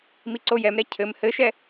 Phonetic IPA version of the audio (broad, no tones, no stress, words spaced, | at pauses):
miǀojɛmɾɛ cʰɘm hɘʃɛ